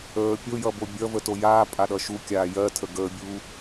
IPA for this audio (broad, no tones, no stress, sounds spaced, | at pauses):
əː pʲ o j ʌ b o bʲ ʌ v ə t o j aː pʼ a ɗ ʌ ʃ u kʲ aː j ɜ tʰ ə ɡ əː bʲ uː